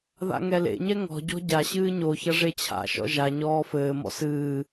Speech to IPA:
ð a̰ ŋ ɛ l ḛ ɲ ɛ ŋ ɔ̤ ɟ ɔ̤ ɟ a ɕ ɨː ɲ o ç ɐ ʐ e t͡ɕʰ a̰ ʃ ɔ̰ ʒ a ɲ ɔː f ɘː m ɔ̰ s ɨː

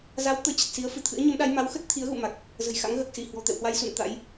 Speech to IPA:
z a˨˦ w t̪ əː˨˦ t͡ɕ ə˨˩ t̚ s i˨˦ ə̯ f ɨ˧˩ t̪ʰ ɨ̰˧˥ ə̯ ɲ ə˨˦ m ɗ a˨˦ j m a˨˦ w x ə˦˥ t̚ t̪ʰ i˨˦ ə̯ ɣ ṵ˧˨ m a˨˩ k̚ | z ə̤˨˩ j x a̰˧˥ ŋ ɣ əː˨˩ k̚ s i˧˩ h w ɔ̤˨˩ t̪ ɛ̰˧˨ w h w a˧ j s ṵ˧˨ n t̪ a̰˧˥ j

